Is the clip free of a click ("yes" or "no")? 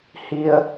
yes